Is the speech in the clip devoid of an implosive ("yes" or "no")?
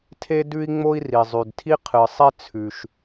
yes